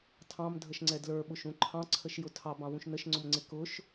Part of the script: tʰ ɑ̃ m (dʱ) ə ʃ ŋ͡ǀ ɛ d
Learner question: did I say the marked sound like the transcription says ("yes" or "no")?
yes